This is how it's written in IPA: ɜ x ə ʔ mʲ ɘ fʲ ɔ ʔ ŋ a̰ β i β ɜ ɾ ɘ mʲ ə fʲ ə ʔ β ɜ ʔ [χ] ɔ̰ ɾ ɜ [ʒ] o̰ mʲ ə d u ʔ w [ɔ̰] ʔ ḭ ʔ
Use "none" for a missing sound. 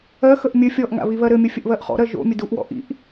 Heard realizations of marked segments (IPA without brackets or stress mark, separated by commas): χ, ʒ, ɔ̰